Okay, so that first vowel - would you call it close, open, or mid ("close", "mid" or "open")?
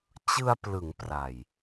close